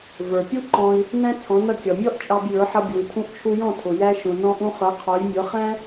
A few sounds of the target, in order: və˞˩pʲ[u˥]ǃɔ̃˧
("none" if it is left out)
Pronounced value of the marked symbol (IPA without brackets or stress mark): u˥